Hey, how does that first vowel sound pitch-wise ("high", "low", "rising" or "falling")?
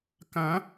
rising